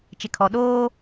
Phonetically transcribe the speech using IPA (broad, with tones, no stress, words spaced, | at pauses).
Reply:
t͡ʃɪ˨kʰɔ˨ ɗoː˦